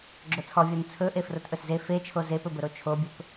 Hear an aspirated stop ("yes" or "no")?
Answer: yes